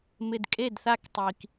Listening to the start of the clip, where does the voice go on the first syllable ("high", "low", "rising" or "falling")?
low